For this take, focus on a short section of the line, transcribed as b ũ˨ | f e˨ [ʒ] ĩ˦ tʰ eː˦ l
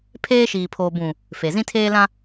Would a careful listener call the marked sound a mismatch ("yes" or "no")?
yes